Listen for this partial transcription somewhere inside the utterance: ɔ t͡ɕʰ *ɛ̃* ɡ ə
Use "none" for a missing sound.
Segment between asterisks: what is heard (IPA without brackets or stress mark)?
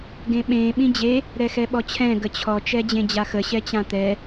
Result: ɛ̃